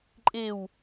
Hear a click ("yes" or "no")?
yes